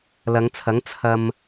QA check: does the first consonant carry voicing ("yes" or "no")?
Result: yes